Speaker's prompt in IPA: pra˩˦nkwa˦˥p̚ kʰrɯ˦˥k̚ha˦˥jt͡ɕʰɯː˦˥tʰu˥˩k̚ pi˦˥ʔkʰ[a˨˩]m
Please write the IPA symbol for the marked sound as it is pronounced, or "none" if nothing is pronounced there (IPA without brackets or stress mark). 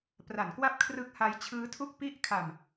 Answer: a˨˩